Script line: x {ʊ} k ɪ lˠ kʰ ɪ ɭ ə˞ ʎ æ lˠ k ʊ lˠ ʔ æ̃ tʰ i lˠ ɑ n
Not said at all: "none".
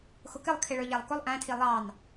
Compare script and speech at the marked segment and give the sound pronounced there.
ʊ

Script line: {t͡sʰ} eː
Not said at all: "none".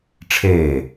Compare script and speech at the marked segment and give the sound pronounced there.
ʈ͡ʂʰ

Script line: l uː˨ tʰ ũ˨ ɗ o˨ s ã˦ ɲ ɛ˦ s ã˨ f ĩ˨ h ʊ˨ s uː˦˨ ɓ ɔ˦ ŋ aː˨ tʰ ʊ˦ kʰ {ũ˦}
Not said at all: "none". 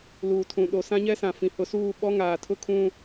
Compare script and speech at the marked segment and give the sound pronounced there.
ũ˦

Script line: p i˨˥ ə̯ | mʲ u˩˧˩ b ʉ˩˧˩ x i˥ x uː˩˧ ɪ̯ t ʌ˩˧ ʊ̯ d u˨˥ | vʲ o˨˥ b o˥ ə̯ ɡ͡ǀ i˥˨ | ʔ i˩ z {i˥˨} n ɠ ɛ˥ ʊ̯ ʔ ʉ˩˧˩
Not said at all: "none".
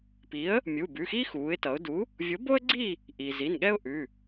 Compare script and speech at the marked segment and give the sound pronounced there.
i˩˧˩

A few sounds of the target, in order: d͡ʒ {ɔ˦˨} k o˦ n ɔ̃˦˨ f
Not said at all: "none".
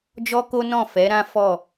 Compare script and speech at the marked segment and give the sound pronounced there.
ɔ˦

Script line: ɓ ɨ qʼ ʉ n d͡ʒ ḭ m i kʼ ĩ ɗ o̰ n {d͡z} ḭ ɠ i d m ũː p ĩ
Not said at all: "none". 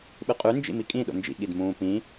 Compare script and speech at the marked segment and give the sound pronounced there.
d͡ʒ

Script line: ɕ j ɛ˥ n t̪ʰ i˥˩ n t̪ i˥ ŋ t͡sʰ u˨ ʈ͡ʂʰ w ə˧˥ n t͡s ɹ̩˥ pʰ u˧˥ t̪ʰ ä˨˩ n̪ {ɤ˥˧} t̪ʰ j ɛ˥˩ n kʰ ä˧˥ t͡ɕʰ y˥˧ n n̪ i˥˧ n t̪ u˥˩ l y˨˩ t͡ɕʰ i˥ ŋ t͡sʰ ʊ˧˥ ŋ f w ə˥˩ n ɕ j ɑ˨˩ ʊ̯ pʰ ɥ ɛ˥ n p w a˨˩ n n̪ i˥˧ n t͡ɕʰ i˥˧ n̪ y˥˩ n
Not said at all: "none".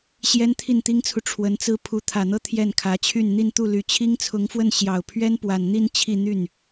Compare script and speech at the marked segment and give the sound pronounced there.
ɤ˥˧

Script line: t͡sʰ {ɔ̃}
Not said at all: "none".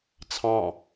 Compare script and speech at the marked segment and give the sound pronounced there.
ɑ̃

